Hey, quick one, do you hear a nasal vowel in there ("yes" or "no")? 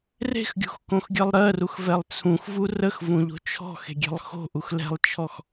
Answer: yes